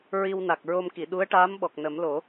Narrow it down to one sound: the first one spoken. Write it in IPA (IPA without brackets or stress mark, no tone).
ɹ